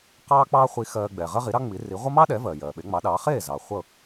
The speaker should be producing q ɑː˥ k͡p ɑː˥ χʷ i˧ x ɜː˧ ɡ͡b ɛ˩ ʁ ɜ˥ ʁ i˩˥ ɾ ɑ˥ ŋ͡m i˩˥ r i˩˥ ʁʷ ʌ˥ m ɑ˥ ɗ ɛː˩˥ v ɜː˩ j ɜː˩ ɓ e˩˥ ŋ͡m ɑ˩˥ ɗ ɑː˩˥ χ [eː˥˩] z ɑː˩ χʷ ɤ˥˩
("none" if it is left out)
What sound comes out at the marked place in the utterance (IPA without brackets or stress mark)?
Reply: eː˥˩